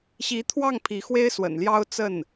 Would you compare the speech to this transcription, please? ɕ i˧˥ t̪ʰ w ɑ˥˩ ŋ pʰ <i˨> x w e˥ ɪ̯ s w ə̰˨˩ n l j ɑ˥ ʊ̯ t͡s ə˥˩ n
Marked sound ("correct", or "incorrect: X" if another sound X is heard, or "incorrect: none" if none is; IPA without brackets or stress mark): incorrect: i˧˥